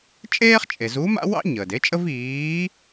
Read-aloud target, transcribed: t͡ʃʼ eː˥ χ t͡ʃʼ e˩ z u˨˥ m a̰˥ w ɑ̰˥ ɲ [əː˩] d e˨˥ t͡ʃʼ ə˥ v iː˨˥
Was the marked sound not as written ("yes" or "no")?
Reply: no